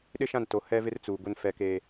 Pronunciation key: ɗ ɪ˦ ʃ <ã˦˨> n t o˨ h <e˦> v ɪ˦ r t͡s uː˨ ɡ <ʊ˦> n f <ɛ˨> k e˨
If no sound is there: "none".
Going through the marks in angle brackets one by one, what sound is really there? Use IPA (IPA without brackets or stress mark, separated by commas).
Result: ã˦˨, ɛ˦, ʊ˦, ɛ˨